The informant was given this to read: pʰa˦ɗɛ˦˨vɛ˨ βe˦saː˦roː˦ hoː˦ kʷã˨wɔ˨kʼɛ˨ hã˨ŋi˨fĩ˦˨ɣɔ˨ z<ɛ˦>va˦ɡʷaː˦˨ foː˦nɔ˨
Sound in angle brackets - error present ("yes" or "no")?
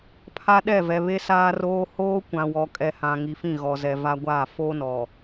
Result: yes